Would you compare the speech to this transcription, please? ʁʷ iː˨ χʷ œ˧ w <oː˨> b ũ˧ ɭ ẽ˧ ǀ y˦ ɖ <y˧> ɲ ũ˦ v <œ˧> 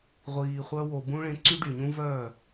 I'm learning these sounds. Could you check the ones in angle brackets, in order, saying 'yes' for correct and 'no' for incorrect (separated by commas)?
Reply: no, no, no